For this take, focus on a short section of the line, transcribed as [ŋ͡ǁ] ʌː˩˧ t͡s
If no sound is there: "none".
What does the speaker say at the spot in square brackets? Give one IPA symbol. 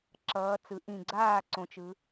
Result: ǁ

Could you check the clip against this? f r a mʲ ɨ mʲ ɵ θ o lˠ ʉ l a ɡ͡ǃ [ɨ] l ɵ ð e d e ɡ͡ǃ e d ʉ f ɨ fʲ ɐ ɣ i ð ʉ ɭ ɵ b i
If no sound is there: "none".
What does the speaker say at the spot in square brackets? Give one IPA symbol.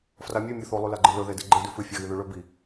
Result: ɨ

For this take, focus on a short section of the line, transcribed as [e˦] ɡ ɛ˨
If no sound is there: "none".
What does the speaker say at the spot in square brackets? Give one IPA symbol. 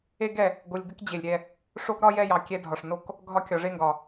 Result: e˦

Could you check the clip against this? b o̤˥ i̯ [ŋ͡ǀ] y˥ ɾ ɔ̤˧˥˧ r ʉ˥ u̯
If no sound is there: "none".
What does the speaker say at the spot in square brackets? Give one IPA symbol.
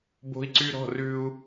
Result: ǀ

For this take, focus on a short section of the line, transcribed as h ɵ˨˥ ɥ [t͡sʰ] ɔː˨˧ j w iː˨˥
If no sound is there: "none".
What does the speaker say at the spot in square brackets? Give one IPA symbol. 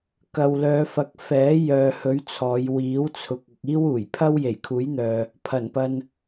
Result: t͡sʰ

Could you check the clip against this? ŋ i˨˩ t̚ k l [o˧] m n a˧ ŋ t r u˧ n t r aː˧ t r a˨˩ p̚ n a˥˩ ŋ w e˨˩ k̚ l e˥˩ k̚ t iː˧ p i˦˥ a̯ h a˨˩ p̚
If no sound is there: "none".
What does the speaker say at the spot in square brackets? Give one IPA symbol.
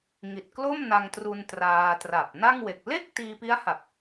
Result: o˥˩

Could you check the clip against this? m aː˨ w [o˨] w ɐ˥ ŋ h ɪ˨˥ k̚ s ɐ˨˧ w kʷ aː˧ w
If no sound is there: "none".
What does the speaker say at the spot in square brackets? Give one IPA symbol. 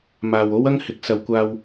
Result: o˥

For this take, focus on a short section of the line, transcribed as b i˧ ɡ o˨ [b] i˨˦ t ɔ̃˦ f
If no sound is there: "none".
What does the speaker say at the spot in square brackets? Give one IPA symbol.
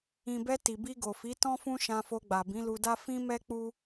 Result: f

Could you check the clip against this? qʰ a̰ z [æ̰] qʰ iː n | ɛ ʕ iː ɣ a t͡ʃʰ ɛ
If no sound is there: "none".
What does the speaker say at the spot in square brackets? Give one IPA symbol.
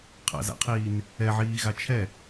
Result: a̰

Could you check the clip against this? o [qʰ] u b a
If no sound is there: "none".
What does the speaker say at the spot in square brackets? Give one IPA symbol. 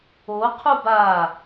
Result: qʰ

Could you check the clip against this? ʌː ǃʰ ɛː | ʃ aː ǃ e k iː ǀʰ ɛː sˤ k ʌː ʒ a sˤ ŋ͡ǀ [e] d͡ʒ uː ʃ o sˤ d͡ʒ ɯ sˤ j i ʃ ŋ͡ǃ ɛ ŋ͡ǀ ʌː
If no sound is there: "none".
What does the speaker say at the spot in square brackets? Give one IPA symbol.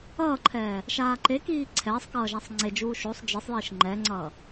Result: e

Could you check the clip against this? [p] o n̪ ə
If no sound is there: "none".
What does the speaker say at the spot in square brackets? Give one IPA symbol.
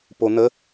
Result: p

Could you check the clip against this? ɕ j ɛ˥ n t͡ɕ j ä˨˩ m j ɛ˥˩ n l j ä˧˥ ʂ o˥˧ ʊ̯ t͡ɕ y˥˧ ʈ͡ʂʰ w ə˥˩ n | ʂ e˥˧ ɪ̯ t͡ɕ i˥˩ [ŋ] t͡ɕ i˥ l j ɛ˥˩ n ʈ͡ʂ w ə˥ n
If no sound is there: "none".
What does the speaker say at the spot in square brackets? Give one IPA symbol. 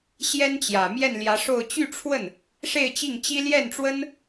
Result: ŋ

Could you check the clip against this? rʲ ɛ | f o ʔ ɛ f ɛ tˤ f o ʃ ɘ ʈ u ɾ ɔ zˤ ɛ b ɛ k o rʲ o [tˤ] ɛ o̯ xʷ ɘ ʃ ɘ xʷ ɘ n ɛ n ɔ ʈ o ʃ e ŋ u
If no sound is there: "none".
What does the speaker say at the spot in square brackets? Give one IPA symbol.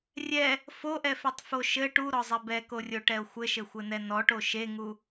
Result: ʈ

